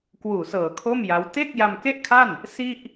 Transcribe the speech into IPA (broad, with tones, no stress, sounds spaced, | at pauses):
k w uː˨˩ s ɤː˨˩ kʰ o˥˩ m j a˦˥ w t e˥˩ k̚ j a˧ m k e˥˩ ʔ kʰ a˥˩ n | s i˥˩ ʔ